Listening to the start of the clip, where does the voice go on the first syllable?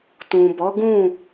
low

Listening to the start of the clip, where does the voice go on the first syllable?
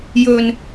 low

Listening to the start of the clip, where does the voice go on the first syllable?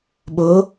rising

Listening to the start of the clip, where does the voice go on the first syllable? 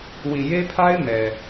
low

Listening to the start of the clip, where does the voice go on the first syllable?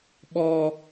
high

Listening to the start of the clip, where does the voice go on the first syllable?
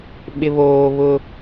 low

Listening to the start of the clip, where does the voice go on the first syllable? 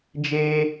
high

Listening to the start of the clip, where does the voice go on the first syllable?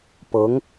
rising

